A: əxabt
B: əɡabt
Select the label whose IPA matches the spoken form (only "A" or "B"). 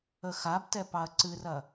A